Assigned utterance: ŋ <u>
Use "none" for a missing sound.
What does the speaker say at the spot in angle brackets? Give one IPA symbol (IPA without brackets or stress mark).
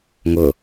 ʊ